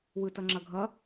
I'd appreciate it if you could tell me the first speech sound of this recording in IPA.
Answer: w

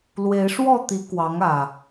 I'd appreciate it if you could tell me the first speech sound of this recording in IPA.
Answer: l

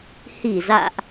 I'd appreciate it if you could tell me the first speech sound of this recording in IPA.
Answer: h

